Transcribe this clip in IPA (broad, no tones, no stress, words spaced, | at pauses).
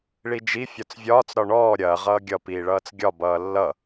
ɭid͡ʒi fʲɒt͡svʲɒːt͡s ɾɒɳɔː ɾʲɐː ʁʌːɡʲʌ piːɭʌːt͡sɡʲɒ bʌːlːʌ